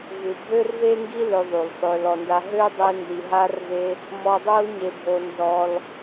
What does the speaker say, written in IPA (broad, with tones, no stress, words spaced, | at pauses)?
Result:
vu˨bʱø˦rve˦ŋɡi˦ lø˧ðˤu˨l sˤø˧lɔ˧nda˦ ɦø˦dˤe˧ ndi˨ɦa˧rve˧ | mɔ˧dˤo˦l ɲe˧bʱo˧nzɔ˧l